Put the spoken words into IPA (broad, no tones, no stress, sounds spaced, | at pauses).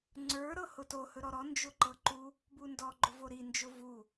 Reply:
ŋ͡ǀ ə˞ ɾ ɤ h ʊ t o h ɵ ɾ ɔ ɾ ɔ n d͡ʒ ʊ ǃ ɤ ǃ u | b u n d ɔ ɡ͡ǃ ʊ v o ɾ i n d͡ʒ ʊ v u